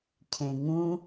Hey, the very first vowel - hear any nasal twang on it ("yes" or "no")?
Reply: yes